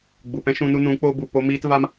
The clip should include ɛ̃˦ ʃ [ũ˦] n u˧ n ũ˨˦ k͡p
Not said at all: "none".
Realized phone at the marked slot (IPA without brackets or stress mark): ũ˧